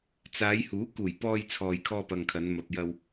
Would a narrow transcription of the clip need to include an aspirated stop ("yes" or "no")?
yes